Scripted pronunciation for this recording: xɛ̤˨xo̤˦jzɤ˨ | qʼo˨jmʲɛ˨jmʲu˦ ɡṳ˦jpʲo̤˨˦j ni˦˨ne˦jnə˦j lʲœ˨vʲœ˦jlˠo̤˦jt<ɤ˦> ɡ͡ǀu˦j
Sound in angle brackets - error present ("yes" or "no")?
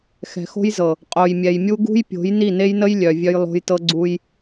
no